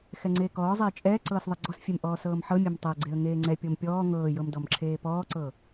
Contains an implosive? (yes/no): no